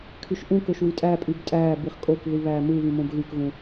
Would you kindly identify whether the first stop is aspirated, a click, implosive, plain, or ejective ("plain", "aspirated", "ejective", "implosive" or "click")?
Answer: aspirated